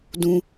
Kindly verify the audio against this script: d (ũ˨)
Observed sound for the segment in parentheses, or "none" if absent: ũ˦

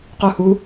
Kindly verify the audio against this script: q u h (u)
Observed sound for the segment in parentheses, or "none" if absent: u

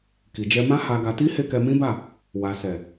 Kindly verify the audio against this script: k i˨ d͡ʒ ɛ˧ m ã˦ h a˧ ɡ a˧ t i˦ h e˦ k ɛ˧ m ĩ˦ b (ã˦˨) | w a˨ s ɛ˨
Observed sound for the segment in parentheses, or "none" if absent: a˦˨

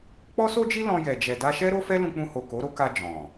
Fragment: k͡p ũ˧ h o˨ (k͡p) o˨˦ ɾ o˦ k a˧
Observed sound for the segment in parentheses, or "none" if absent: k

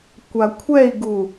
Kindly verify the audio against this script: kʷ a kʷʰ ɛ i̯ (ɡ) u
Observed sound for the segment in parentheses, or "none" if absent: ɡ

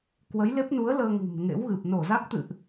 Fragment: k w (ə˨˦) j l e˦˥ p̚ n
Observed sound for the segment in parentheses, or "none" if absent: ə˨˦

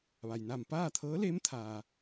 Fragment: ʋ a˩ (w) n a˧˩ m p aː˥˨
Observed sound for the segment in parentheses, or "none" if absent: j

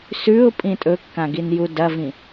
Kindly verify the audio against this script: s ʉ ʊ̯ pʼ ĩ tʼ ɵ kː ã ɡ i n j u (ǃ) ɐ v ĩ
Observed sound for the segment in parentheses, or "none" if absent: d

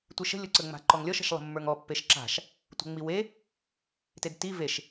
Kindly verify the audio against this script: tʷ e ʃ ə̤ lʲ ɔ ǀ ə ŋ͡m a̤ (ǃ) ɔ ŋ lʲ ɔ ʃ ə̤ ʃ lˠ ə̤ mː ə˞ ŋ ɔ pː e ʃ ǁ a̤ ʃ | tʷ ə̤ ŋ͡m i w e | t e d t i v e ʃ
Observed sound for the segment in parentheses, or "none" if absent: ǃ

